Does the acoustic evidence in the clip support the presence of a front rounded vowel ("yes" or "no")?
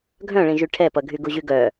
yes